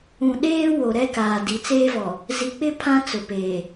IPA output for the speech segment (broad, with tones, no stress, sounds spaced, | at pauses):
ũ˨ ɗ eː˦ w o˨ ɾ ɛ˦ k aː˨ d i˨ t͡s eː˦ v ɔ˨ | z i˨ k͡p ɪ˦ pʰ ã˦ t͡s ʊ˨ p eː˨